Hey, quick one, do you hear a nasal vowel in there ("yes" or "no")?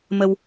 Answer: no